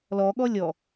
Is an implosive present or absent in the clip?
present